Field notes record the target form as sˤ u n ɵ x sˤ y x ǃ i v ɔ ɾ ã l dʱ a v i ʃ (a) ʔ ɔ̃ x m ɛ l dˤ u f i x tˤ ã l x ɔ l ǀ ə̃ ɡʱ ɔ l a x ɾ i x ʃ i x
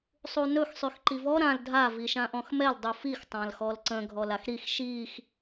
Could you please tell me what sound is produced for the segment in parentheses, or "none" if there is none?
ã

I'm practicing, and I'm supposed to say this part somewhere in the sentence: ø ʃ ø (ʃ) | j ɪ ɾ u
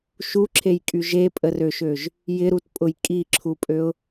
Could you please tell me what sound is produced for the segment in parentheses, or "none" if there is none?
ʒ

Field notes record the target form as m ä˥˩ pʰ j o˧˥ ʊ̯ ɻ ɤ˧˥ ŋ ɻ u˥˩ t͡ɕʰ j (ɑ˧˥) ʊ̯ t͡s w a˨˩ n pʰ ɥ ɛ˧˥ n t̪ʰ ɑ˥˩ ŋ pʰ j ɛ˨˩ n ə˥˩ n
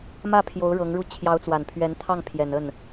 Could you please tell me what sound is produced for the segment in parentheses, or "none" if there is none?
ɑ˧˥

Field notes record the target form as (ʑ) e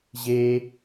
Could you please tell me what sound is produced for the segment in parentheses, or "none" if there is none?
ʑ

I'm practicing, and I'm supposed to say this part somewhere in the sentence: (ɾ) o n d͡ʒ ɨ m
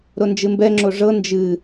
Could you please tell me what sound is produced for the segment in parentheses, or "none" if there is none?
ɾ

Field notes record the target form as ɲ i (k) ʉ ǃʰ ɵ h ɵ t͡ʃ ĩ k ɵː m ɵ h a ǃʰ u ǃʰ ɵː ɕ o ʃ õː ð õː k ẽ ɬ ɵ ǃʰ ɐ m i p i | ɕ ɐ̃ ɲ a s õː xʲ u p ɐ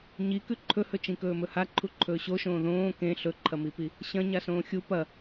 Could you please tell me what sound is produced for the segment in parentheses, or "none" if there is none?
k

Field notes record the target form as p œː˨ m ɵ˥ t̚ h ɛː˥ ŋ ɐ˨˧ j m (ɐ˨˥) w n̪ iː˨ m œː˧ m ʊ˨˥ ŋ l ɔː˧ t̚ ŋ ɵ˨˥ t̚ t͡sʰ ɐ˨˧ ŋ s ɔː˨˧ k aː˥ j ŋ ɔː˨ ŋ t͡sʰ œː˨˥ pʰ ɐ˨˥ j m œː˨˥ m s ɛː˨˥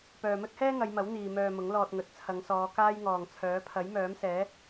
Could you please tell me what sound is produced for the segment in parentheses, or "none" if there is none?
ɐ˨˥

